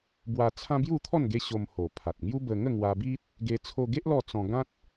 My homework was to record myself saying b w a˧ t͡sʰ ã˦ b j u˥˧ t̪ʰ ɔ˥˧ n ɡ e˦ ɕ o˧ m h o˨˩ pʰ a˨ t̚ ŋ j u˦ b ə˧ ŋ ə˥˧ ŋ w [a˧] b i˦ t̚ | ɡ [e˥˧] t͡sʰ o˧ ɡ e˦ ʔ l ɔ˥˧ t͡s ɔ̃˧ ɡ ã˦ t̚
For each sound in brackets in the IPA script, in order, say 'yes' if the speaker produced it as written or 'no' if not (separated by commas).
yes, no